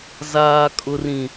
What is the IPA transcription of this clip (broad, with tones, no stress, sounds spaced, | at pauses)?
z aː˨ kʼ ʊ˨ r ĩ˨